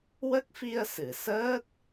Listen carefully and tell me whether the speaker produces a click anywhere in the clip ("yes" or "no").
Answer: no